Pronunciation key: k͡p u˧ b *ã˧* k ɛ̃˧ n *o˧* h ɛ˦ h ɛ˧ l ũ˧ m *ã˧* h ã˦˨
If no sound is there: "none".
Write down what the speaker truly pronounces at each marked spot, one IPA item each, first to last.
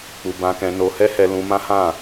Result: ã˧, o˧, ã˦

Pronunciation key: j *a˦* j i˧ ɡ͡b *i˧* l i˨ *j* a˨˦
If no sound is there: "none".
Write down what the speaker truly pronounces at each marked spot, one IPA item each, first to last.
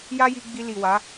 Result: a˦, i˧, w

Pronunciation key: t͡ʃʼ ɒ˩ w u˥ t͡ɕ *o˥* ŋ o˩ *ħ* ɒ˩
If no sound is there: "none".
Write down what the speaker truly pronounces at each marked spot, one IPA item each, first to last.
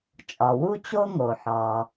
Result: o˥, ħ

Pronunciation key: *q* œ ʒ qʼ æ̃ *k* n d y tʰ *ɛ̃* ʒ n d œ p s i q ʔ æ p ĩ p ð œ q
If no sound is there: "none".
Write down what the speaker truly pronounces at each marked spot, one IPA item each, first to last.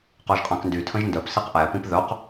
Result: q, k, ə̃

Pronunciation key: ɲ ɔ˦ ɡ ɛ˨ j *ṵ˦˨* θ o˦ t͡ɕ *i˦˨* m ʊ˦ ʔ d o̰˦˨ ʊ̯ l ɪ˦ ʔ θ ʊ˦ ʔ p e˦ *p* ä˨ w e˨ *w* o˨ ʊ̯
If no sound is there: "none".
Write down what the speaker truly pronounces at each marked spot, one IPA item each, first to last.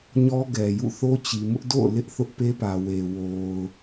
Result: ṵ˦˨, i˨, p, w

